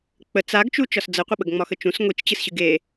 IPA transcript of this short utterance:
k͡pə t͡saɡt͡ʃu t͡ʃɒsd͡zəqʷə ɓəɡŋ͡mɒxət͡ʃũs ŋʷit͡ʃt͡ɕɨsɕɨɡ e

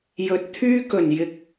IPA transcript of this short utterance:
jɵ˨t̚t̪ʰyː˥ kɵ˨˩njɪ˨k̚

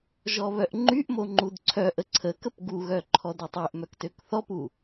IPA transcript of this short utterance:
ʒɔβœʔŋ͡ǃyʔmo ŋ͡ǃudǀʰœʔə ǀʰəkəp ɡuɣœ ǃʰɔdøtˤeʔmœk tøkθɔpu

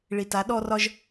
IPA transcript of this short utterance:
ɭi˨ta˨˦ ɗɔ˧rɒ˧ʒ

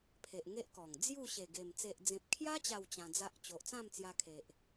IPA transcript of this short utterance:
pʰe˨ʔ ŋe˦ʔkɔ˨˩ŋ d͡zju˥˧ɕe˨˩ɡe˨˩m t͡se˨ʔd͡zẽ˨p̚kʰja˦ t͡ɕa˥˧wt͡ɕã˧d͡za˦ʔ t͡ɕo˨ʔt͡sã˥˧mt͡sja˧kʰe˨ʔ

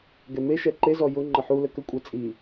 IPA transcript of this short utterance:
ɡɛmeʃɛ ǃezɔ jʊ ŋ͡ǃəħulə kəkʷʼɛ t͡sʼi

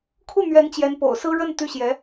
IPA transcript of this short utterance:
kʰu˥˩ n̪ɥɛ˧˥nt͡ɕjɛ˧˥npo̰˨˩ʊ̯sɹ̩˥ ɻə˥˧n t̪y˥˩ɕjɛ˧˥

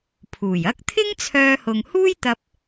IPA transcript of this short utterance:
pʰuː˨˩jɐ˥k̚ t̪ʰɪ˥ŋt͡sʰœː˧hʊ˨ŋhuː˥j t̪ɐ˥p̚

